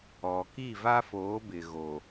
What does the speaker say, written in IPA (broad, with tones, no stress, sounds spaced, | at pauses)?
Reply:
ɔ˨ k i˦˨ v a˦ f oː˨˦ b ɪ˨ ɣ o˨